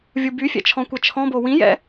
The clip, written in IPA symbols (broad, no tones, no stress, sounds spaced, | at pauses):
vʲ u b y fʲ ɛ̰ t͡ʃʰ ɔ̃ kʷ ɛ t͡ʃʰ ɔ̃ b o w ĩ j ɛ̰